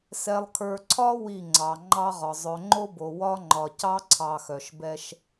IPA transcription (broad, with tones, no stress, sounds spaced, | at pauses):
s ɛ˨ lˠ kʰ ə˞˨ ǀʰ ɒ˦ w i˦˨ ŋ͡ǀ ɑ˨ ŋ͡ǃ ɑ˦ ʁ ɒ˨ zˤ œ˨ ŋ͡ǃ o˦ b o˨ w ɒ˦ ŋ͡ǃ ɒ˨ c ɑ˦ ǀʰ ɑ˨ x œ˨ ʃ b ɛ˦ ʃ